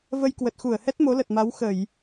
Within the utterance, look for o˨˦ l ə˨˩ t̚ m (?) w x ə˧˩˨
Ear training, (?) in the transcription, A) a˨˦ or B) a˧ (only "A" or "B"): A